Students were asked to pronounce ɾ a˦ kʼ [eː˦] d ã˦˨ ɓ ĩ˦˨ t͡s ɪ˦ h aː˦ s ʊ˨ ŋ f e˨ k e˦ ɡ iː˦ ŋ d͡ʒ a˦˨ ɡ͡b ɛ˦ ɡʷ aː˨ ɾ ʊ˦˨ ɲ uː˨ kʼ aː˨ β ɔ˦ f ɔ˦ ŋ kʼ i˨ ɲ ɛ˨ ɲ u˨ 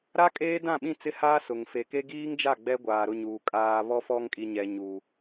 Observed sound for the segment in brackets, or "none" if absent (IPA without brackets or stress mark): eː˦